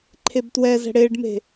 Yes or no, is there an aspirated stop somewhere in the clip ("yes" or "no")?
yes